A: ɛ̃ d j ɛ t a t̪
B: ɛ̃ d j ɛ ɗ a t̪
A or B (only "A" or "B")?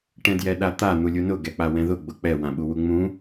B